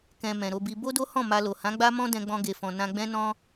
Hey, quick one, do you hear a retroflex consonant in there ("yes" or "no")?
no